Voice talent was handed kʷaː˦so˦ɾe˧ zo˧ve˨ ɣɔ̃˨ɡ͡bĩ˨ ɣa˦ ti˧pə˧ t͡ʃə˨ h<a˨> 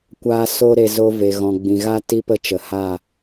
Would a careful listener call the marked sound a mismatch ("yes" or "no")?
yes